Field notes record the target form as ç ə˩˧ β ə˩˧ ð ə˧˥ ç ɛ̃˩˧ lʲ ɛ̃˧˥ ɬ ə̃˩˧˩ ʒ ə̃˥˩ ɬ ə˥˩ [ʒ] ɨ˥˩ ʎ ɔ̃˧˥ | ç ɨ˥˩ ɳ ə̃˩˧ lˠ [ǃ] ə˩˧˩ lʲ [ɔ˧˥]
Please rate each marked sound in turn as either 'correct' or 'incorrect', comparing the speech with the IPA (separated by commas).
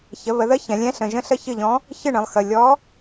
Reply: incorrect, incorrect, correct